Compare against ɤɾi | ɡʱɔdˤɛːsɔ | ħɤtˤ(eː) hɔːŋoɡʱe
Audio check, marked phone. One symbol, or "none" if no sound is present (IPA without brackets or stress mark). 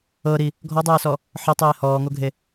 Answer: eː